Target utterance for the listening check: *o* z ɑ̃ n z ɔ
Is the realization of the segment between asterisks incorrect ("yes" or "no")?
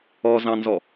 yes